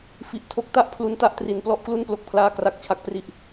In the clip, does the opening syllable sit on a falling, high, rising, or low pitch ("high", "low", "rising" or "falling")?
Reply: low